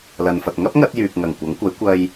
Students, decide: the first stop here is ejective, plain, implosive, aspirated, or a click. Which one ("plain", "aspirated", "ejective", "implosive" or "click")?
plain